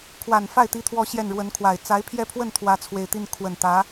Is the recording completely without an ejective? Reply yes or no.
yes